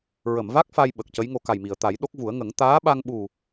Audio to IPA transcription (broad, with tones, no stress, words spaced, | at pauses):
ɹə˨˩˨mva˦˥k̚ fa˧jɓə˨˩k̚ cə˧˥jŋo˧ka˨˩jmi˨˩˨ə̯ t̪a˨˩˦jɗo˦˥k̚vu˨˩˦ə̯ŋə˨˩˦ŋ t̪aː˧˥ɓa˧ŋɓu˨˩